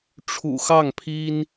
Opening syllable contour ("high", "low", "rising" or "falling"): low